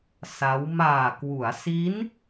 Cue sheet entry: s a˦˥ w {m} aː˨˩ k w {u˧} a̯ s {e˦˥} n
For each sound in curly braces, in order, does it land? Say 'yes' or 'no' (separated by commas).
yes, no, no